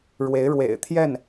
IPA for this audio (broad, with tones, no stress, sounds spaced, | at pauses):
ɻ w e˧˥ ɪ̯ ɻ w ḛ˨˩ ɪ̯ t̪ʰ j ɛ˥˩ n